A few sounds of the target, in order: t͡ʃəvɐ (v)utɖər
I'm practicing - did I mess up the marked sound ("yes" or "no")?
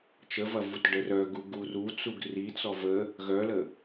no